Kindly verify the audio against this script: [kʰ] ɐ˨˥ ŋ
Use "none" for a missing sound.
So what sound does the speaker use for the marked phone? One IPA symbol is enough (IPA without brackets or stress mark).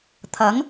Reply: t̪ʰ